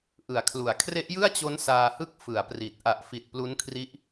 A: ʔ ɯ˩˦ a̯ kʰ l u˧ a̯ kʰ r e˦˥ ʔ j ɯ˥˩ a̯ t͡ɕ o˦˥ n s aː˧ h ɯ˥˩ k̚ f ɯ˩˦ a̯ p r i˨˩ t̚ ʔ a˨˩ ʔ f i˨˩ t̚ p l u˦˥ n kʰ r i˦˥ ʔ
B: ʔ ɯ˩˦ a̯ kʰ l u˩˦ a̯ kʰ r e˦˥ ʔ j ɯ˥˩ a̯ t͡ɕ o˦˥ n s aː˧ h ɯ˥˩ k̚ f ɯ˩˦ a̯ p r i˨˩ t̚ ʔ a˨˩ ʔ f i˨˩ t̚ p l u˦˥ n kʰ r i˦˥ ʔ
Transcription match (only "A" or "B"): B